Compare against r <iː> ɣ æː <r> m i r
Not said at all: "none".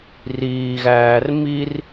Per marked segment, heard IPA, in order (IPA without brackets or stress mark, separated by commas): iː, r